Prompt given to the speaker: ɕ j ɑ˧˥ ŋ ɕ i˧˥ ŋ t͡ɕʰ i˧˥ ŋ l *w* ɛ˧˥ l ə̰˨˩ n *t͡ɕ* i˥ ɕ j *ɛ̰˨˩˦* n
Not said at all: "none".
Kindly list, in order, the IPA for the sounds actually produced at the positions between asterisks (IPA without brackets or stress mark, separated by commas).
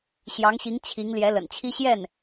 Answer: j, t͡ɕʰ, ɛ˥˩